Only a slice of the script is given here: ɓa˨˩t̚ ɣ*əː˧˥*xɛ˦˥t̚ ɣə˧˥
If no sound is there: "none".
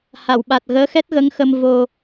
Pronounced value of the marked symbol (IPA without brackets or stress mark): əː˧˥